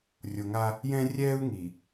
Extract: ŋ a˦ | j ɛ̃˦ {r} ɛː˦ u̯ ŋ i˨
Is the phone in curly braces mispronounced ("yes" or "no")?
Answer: yes